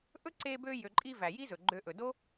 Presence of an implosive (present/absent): absent